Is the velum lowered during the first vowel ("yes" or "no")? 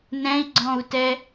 yes